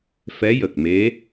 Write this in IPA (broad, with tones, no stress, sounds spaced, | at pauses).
f ɛ˧˥ j ə˨˩ k̚ m e˧˥